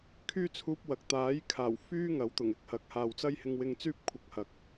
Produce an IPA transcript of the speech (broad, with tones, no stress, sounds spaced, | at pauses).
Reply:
kʰ yː˥ t͡sʰ uː˧ p̚ w ɐ˨ k̚ t̪ aː˨˥ j kʰ aː˨˩ w f yː˥ ŋ ɐ˨˥ w t̪ ʊ˨˩ ŋ ɪ˨˥ k̚ h ɐ˨˥ k̚ h aː˨ w t͡s ɐ˥ j h ɪ˧ ŋ w ɪ˧ ŋ t͡s yː˥ p̚ kʷʰ ɐ˧ k̚ h ɐ˨ k̚